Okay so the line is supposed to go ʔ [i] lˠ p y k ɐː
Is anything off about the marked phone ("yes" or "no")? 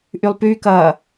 yes